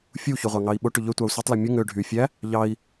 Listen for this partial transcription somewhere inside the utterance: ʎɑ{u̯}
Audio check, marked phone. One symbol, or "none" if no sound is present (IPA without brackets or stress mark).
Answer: i̯